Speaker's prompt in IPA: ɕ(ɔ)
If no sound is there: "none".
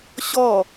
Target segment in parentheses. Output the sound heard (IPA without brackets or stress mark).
ɔ